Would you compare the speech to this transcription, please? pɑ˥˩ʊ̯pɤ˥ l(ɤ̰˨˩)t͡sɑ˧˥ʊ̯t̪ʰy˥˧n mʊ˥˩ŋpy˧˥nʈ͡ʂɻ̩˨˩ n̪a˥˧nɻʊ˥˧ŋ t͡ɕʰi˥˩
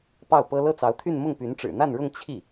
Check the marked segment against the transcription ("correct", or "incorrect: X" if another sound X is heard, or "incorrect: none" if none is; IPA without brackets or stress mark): incorrect: ɤ˥˩